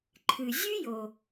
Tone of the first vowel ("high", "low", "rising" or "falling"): low